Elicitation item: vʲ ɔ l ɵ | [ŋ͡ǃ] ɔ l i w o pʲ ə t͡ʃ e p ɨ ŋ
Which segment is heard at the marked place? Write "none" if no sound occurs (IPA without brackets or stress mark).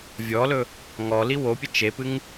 ŋ